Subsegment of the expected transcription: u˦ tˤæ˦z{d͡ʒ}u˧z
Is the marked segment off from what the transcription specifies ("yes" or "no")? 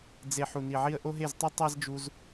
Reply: no